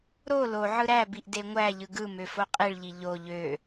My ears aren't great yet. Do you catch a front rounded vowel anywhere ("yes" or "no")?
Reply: yes